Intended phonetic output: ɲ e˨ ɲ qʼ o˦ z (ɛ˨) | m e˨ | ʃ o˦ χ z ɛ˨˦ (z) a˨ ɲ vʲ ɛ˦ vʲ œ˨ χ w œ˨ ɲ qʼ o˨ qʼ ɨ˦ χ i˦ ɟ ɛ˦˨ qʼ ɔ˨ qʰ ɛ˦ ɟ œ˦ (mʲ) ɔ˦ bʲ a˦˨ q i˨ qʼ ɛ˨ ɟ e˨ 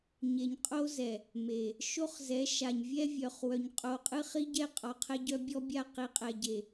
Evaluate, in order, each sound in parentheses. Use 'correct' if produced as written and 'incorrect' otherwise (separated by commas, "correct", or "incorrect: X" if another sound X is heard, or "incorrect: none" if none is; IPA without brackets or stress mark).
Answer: correct, incorrect: ʃ, incorrect: bʲ